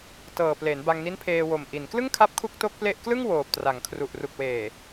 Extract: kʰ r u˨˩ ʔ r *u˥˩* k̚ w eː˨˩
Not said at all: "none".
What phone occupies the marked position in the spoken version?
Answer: u˨˩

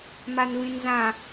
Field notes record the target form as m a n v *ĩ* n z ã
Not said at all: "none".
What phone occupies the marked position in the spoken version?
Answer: ĩ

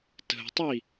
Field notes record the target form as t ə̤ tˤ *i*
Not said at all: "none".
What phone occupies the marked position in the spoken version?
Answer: i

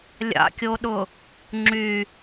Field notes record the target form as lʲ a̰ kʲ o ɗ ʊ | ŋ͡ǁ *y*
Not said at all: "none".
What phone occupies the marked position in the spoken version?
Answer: y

